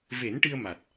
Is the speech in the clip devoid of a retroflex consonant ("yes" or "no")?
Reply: no